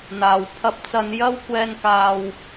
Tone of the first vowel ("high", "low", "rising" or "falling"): low